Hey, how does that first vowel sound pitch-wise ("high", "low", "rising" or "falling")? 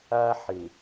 high